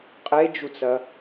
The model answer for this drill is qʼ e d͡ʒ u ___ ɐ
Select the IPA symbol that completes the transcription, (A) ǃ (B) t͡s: B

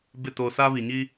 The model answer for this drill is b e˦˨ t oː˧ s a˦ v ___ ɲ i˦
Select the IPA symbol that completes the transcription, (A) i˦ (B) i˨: B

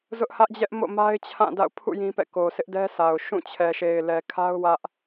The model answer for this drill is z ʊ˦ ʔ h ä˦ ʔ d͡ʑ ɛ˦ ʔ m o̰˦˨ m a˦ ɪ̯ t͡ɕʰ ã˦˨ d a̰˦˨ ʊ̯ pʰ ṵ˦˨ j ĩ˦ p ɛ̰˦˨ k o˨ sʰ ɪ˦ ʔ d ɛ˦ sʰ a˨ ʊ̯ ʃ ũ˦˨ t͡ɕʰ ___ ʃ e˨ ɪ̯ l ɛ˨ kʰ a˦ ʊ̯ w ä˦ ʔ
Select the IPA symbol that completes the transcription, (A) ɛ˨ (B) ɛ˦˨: A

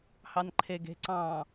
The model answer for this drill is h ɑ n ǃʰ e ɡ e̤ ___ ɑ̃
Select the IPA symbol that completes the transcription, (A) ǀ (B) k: A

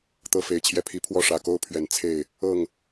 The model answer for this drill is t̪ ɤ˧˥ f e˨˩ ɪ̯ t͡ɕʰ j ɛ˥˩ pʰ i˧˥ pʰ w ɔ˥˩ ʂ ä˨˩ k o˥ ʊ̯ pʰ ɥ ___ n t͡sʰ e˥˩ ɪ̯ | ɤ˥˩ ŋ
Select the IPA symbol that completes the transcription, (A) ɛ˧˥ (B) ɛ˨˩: B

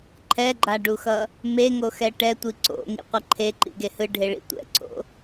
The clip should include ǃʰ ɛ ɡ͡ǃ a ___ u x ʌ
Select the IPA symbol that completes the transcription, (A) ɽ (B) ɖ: B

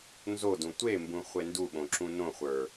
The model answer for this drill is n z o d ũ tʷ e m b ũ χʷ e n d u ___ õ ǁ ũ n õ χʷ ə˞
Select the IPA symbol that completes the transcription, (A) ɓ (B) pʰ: A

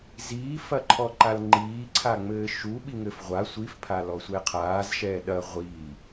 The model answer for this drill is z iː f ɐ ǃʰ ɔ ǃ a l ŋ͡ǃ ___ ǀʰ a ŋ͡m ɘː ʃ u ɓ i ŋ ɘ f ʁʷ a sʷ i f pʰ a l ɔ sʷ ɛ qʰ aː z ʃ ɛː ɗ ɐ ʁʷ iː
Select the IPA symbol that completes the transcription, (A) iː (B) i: A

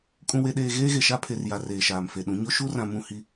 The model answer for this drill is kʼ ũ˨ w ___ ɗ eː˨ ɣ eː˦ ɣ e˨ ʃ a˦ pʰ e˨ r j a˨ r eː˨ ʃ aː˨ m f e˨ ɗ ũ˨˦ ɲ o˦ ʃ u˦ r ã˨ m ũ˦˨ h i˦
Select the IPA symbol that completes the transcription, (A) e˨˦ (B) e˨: B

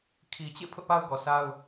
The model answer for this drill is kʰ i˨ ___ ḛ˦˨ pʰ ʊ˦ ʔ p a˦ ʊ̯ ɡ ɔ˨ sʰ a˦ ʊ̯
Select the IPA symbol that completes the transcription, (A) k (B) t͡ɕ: B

